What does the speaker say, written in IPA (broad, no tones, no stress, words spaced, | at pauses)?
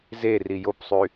zeri jopsˤy